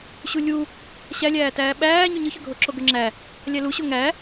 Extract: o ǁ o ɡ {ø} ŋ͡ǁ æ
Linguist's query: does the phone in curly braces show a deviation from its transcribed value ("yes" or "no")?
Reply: no